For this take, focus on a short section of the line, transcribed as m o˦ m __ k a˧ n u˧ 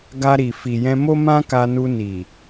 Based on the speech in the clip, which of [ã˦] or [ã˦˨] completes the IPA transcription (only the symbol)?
ã˦